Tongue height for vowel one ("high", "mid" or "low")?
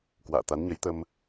low